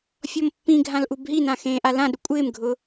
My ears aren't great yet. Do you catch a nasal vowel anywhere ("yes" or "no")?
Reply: yes